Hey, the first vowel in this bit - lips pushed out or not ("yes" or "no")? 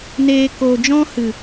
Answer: no